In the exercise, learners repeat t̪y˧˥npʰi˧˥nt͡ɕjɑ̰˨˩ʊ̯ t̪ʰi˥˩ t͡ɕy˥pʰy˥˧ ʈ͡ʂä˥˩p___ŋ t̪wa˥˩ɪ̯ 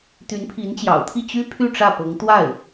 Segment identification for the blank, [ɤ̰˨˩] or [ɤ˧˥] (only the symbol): ɤ˧˥